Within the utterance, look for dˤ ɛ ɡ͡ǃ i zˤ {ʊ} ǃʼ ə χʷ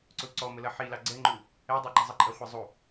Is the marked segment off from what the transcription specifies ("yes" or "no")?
yes